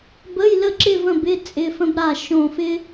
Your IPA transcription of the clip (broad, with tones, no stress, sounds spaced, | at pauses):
b ə˧˥˧ j l ə˥˧ ǁ ɪ˥˧ v ə̃˥˧ b ɪ˧˥˧ t͡sʼ ɪ˧˥˧ f ə̃˥ b ɾ a˥˧ ʃ õ˥˧ f ɪ˥